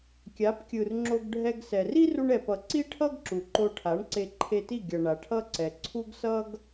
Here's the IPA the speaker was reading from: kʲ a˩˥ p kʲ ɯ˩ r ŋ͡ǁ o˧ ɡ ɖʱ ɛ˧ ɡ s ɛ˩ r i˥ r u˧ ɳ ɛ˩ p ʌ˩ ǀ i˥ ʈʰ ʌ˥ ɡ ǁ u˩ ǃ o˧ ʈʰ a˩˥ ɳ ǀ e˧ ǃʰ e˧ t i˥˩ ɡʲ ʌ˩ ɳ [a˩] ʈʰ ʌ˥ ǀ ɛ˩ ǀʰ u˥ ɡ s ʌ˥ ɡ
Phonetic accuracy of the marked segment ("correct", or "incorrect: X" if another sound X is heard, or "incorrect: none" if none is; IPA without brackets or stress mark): correct